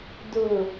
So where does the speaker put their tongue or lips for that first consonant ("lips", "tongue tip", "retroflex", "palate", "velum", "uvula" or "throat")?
tongue tip